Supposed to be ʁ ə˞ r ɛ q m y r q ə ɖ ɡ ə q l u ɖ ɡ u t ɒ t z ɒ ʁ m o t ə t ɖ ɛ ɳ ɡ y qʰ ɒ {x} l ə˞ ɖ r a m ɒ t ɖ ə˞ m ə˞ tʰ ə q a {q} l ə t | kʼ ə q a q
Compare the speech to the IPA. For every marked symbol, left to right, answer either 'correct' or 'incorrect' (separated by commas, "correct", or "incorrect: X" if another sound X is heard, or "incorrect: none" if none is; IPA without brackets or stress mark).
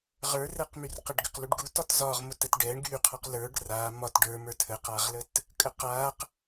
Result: incorrect: q, incorrect: ʁ